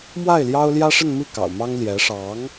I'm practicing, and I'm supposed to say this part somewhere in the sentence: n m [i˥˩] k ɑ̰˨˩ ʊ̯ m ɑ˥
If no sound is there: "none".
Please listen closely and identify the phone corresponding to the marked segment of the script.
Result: i˥˩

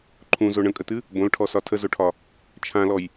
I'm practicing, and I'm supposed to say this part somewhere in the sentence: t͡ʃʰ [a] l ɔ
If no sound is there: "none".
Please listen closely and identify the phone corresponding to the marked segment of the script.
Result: ã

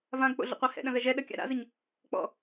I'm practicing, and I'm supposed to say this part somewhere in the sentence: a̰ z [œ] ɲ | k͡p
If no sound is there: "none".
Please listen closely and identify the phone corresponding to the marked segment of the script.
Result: ə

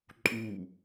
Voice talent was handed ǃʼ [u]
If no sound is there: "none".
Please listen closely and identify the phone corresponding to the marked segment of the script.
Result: u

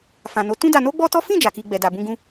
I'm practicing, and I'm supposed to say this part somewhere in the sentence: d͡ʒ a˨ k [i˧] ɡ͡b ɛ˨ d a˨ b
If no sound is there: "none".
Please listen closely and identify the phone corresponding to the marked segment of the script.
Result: i˧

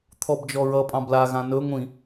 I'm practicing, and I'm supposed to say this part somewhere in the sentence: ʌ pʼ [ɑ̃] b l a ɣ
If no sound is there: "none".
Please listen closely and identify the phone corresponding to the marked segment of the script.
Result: ɑ̃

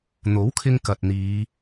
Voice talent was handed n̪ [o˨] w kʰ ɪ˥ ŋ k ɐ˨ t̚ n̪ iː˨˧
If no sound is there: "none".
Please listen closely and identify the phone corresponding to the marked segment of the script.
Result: o˨˥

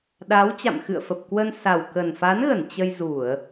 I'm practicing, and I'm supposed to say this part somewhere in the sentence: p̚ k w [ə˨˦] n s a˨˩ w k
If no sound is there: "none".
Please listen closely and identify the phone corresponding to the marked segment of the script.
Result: ə˧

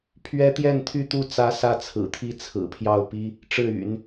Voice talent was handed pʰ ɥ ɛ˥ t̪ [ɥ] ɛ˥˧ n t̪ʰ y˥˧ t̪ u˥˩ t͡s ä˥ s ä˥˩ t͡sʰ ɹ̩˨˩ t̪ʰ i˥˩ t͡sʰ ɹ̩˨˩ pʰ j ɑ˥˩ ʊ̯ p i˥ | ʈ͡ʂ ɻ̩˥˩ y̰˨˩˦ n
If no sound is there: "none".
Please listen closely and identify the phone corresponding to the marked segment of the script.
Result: j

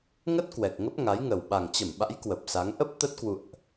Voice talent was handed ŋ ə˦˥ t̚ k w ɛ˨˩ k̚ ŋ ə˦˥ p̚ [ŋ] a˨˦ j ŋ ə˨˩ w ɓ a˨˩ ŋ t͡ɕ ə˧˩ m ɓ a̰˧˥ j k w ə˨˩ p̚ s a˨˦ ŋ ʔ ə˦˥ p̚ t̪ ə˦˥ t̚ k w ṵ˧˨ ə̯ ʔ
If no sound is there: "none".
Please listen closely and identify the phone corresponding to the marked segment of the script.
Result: ŋ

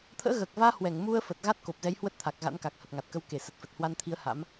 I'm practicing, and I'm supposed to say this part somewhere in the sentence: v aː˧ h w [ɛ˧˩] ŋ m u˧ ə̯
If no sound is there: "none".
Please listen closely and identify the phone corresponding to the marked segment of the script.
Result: ɛ˧˩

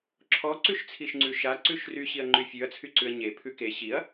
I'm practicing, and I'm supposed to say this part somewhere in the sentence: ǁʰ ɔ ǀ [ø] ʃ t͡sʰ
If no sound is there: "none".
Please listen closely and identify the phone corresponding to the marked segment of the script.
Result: ʉ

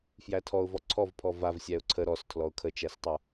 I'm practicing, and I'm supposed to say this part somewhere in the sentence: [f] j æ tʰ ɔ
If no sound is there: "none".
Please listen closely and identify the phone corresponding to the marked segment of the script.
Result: f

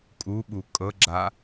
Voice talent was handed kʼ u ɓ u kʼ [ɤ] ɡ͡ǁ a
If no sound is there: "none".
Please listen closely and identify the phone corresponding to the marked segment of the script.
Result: ɤ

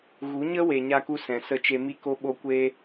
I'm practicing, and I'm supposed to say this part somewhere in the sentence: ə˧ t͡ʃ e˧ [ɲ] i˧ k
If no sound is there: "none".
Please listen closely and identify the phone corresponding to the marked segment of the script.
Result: m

